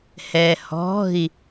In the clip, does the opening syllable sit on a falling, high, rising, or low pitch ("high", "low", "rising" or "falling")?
low